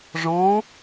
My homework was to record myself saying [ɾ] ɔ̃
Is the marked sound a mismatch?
yes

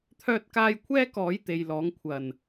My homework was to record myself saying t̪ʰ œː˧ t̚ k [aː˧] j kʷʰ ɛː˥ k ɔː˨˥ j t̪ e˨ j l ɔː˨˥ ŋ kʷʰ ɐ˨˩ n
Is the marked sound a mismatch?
no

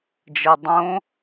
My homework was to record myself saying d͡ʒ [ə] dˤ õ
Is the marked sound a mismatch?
no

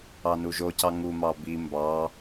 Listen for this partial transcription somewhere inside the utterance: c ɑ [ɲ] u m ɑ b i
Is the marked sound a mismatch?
yes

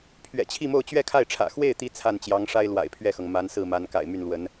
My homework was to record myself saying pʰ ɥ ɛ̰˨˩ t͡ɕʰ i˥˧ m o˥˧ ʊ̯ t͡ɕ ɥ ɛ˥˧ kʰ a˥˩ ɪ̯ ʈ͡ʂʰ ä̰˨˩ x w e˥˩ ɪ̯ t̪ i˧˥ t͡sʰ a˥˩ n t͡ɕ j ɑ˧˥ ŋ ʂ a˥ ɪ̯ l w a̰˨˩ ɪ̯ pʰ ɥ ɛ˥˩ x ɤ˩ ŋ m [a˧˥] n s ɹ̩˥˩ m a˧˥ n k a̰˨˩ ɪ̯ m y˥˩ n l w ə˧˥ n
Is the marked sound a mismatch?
no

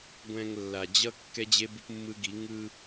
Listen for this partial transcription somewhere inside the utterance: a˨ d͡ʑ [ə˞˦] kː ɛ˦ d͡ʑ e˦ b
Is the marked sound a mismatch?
yes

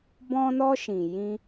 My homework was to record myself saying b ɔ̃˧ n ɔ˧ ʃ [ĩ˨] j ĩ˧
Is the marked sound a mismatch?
no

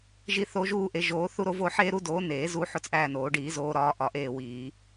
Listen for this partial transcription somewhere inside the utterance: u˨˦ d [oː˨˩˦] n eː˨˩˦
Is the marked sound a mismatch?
yes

